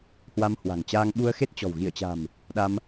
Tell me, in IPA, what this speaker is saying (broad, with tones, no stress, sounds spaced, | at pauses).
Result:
h w a˧ m h w a̤˨˩ ŋ t͡ɕ aː˧ ŋ ɓ u˧ ə̯ x e˦˥ t̚ t͡ɕ ɔ̤˨˩ w ɣ i˧˩ ə̯ t͡ɕ a̤˨˩ m | ɗ a˧ m